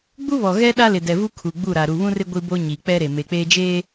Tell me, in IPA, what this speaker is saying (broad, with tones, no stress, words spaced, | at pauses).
ɡ͡bu˦βɔ˨ɣɛ˦ ɗa˦lɪ˨dɛ˨vu˦ kʰu˨ɡ͡bu˦˨ɾa˨ ɾu˨βũ˦rɪ˦ ɡʷi˦bo˦ ɲi˨k͡pɛ˦ ɾe˨ me˨k͡peː˦d͡ʒeː˦